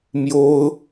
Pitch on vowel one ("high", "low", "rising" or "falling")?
high